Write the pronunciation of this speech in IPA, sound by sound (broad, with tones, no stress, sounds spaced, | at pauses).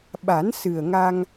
ɓ a˨˩˦ n s ɨ˨˩ ə̯ ŋ a˧ ŋ